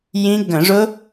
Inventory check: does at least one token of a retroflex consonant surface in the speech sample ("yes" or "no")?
yes